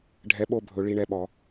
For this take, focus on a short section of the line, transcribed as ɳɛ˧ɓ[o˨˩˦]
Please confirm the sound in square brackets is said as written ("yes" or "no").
no